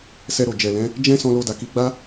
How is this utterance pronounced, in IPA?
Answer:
s ɛ˧ ɾ o˨ d͡ʒ ɛ˨ l ɛ̃˨˦ | d͡ʒ ɛ̃˦ s ɔ̃˧ l o˧ d a˨ k i˨˦ ɡ͡b a˦

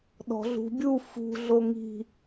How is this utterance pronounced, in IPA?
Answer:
ɗ ɔ̤ ɮ ṳ bʲ u f ṳ ɮ o ŋ i̤

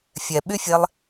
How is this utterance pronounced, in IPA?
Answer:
fʲ ɛ ɓ y fʲ e lˠ

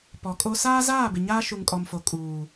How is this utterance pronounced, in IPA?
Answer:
p ɔ˨ kʼ o˦ s aː˦ z aː˦˨ b ɪ˨ ɲ aː˦ ʃ u˨ ŋ kʼ ɔ˨ m f o˨ kʼ uː˨

